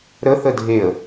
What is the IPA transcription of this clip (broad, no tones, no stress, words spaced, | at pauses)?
ɾəθə dʱeə̯